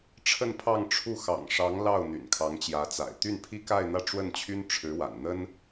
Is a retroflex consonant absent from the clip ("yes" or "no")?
no